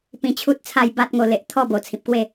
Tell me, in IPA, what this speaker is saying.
p ĩ˧ t͡ɕʰ u˦ t̚ t͡sʰ a˥˧ j b a˦ t̚ ŋ o˧ l e˨ ʔ t̪ʰ ɔ˥˧ b o˨˩ t͡sʰ ĩ˨ p̚ k w e˥˧

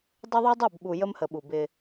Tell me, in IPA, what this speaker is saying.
dˤ e˦ ðˤ y˦ dˤ ɛ˦˨ b ɓ u˨ j ə˦ m h ə˨ ɓ u˨ b ɪ˦

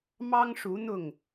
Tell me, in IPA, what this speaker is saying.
m ɑ˦ ŋ ʂ u˨˦ n̪ ʊ˥˨ ŋ

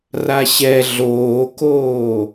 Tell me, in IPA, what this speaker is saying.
r a ɕ ɛ ɮ oː k oː

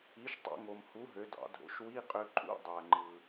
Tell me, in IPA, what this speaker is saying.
i˩˥ ʃ tˤ o̰˧ ŋ o˩ m h u˩˥ ɦ ø˩˧ d ɑ̰˩˧ dʱ o̰˩˧ ʃ w i˧˥˧ qʼ ø˧ ǃʼ ṵ˧˥˧ dˤ æ˩ ŋ͡ǃ ɯ˩

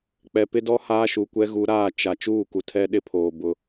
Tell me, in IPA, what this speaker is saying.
k͡p ɛ˨ p ɪ˦ d ɔ˦ h aː˦ ʃ u˨ kʷ ɛ˦ ɣ u˨˦ ɾ aː˦˨ t͡ʃ a˨ t͡ʃ uː˦˨ k u˨ tʰ ɛ˦ ɗ ɪ˦ pʰ oː˨ b ʊ˦

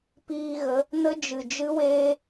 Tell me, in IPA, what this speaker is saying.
p iː˧ ɣ ə˨˦ | n ə˦ d͡ʒ ɨ˨ d͡ʒ ɨ˦ w eː˦

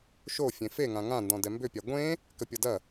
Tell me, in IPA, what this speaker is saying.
ʃ o fʲ ẽ f e ŋ ã ŋ ã n d ɔ̃ d ɛ m b ʏ pʲ a ɡʷ ẽ | k ə pʲ ʌ d ɐ

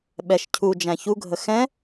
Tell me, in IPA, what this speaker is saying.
ɓ ɛ ʃ cʰ u d͡ʒ æ̃ ç u ɡʱ ə x ɛ̃

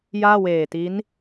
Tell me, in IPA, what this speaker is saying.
j aː˥˩ w eː˨˩ t i˦˥ n

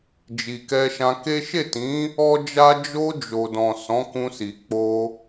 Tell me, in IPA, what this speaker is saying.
d͡ʒ i˨ k ɛ˧ ʃ ã˧ k e˦ ʃ e˦˨ t ĩ˨˦ | ɔ˦ d͡ʒ a˦ d͡ʒ o˧ d͡ʒ o˨ d ɔ̃˨ s ɔ̃˨˦ k ũ˧ s i˨ k͡p o˧

